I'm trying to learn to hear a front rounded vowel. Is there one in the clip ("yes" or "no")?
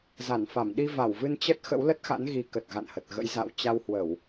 no